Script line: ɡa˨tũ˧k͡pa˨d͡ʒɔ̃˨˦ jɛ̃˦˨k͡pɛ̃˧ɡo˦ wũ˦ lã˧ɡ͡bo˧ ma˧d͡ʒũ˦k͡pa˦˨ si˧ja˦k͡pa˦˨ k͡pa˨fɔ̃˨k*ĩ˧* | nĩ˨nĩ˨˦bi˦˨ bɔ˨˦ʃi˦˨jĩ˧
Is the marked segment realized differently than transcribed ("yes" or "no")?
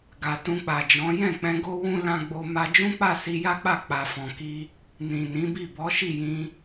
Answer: yes